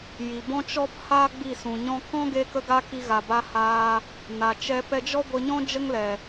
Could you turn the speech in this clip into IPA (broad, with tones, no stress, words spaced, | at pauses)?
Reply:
ji˨bɔ̃˦t͡ʃɔ˦p haː˦ ɡ͡bi˦˨sũ˨ɲɔ̃˦ kɔ̃˦ ɡe˧kə˧ɡa˧ ki˧ɣa˨ba˧haː˧ | na˨t͡ʃɛ˧ pɛ˧d͡ʒɔ˦ ɡʷə˧ɲɔ̃˦ d͡ʒə˦ŋlɛ˨